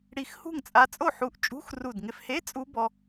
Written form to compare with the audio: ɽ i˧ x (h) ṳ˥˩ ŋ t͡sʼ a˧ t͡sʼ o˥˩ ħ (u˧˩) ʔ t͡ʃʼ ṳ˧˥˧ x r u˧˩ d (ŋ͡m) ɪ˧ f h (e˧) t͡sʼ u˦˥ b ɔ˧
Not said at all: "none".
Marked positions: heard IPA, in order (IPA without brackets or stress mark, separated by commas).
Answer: h, u˧˩, ŋ, e˧˥˧